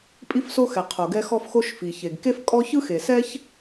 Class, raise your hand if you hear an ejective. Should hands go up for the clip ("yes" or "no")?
yes